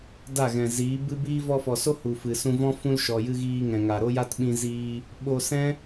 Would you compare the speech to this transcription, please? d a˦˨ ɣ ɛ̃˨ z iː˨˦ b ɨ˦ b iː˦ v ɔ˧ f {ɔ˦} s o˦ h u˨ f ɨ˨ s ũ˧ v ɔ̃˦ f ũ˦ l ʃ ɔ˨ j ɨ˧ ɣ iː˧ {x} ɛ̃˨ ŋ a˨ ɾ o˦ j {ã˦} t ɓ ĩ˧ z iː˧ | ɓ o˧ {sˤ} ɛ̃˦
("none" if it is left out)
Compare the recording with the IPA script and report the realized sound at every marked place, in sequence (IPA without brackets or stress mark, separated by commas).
ɔ˨, ŋ, a˦, s